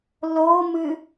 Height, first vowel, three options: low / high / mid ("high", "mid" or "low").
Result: mid